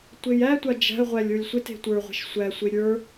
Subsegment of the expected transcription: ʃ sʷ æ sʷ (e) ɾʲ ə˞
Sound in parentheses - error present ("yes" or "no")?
no